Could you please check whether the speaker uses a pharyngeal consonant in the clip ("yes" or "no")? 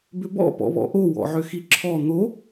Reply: yes